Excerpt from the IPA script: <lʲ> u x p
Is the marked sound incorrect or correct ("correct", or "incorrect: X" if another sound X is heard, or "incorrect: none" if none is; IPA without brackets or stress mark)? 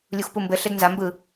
correct